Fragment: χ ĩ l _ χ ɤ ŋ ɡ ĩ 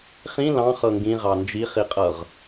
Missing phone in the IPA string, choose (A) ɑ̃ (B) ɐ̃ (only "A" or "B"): A